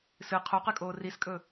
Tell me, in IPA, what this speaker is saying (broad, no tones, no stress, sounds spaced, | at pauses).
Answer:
s ɨ qʰ o q ɨ kʼ oː r i s kʼ ɵ